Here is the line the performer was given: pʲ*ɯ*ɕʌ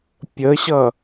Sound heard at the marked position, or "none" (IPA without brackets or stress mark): ə